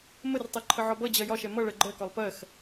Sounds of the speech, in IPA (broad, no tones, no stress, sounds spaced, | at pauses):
m ə r tˤ ɛ ǃʰ ə ʕ ɒ b ʌ d͡ʑ ɜ j ɒ ʃ ɛ m ʌ ɭ ɜ ɡ͡ǃ ɜ k ɒ lˠ p ɜ x